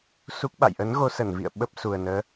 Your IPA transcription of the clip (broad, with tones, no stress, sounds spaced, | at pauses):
s u˦˥ k̚ ɓ a̰˧˨ j ʔ ə˨˦ n ɣ o˧ s ə˧˩ n v ḭ˧˨ ə̯ ɓ ə˦˥ p̚ s u˨˩ ə̯ n əː˨˦